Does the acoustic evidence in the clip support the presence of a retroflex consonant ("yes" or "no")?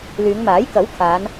no